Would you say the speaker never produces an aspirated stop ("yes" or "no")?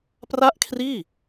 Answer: no